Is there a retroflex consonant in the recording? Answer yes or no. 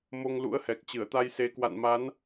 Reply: no